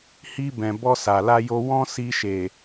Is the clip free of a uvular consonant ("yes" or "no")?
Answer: yes